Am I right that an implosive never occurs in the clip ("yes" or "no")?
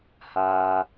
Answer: yes